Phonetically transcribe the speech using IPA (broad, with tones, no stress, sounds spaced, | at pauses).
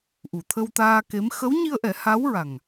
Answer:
ʔ u˨˩˨ t̪ʰ ə˧ w t̪ aː˧ k e˧˥ m x ə˧˥ w ɲ i˧ ə̯ ʔ ɛ˨˩˦ h a˧˥ w ɹ a˨˩ ŋ